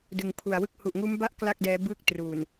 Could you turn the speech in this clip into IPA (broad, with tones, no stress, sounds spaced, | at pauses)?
d ɯ˩˦ ŋ pʰ u˨˩ a̯ w ɯ˦˥ k̚ h u˨˩ ʔ ŋ uː˦˥ m b a˥˩ ʔ k l a˥˩ k̚ d ɛː˦˥ b ɯː˥˩ k̚ t r uː˨˩ n